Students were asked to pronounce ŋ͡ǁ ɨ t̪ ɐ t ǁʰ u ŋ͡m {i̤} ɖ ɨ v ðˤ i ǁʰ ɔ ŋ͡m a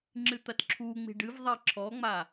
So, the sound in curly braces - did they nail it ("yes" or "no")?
yes